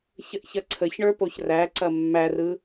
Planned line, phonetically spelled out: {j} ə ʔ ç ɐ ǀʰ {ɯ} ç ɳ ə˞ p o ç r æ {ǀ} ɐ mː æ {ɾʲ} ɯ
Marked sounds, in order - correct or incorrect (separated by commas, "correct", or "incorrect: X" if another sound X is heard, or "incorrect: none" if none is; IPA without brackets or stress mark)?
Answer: incorrect: ç, incorrect: ə, correct, incorrect: r